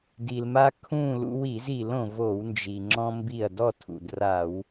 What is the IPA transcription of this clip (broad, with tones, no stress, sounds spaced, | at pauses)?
d i˩ l m a˧ kʰ ũ˥˨ l ṵ˧ w i˧˩˧ z i˧˩˧ l õ˩ v o˧˩˧ w n d͡ʒ i˩ ŋ͡ǁ ɔ̃˧ m b i˧˩ ɐ̯ d ɔ˥˨ tʰ ṵ˩ d r a˧˩˧ w